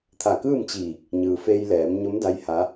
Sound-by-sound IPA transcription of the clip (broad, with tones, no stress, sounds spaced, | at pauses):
t̪ʰ a˧˩ k ɯː˥˨ m t͡ɕ iː˧˩ k̚ | ɲ ɯː˩ f eː˧ j l ɛː˩˧ m ɲ o˧˥ m d a˧˥ j h a˧˥